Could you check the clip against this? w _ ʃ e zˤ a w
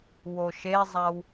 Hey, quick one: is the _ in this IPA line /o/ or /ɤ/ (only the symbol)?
o